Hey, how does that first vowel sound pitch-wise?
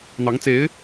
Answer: rising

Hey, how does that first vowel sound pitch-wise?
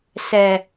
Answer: low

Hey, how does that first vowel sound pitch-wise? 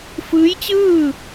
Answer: rising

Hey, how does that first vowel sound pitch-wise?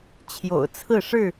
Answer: low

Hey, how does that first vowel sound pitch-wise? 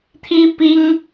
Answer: high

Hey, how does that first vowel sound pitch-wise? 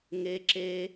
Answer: high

